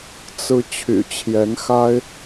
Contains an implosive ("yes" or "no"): no